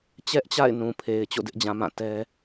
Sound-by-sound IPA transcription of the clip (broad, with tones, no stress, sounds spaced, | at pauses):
t͡ɕ ɛ˦ ʔ t͡ɕ a̰˦˨ ɪ̯ n ũ˨ pʰ e˨ ɪ̯ t͡ɕ o̰˦˨ d ɪ˦ ʔ d͡ʑ ã˨ m ã˦˨ t ɛ˦